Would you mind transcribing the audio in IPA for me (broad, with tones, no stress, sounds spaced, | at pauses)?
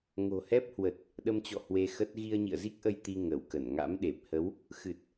ŋ o̤˨˩ h ɛ˦˥ p̚ h w ə˨˩ t̚ | ɗ ə˧ m t͡ɕ ɔ̰˧˨ h w e˧ x ə˦˥ t̚ ɣ i˧ ə̯ ɲ ḭ˧˨ ə̯ z i˦˥ k̚ ʔ ə˧ j t̪ i˧ ŋ ə˧˩ w k ə˧˩ n ŋ a̰˧˥ m ɗ e˨˩ p̚ h ə˨˦ w | x ɨ˨˩ t̚